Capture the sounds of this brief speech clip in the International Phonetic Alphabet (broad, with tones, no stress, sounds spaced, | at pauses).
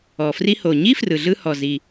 ɔ˩ f r i˧ h o˩ ɲ i˥ f r ɯ˩ ɮ ɯ˧ h ɔ˩ z i˩